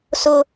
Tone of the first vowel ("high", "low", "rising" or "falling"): high